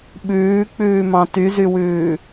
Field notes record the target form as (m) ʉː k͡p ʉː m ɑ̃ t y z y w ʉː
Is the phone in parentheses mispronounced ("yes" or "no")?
yes